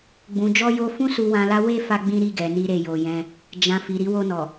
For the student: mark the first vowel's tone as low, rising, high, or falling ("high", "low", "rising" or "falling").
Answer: low